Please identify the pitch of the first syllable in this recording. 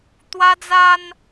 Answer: high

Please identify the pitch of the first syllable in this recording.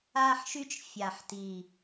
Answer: high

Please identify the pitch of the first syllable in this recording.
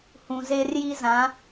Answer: low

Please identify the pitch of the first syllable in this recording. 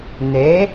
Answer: rising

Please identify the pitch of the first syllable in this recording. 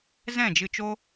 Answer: falling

